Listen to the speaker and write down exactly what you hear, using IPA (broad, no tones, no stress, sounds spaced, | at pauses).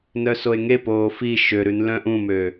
n œ s o e̯ ŋ e p oː f i ʃ ø ɾ ʉ n l œ̃ ʔ ũ m ø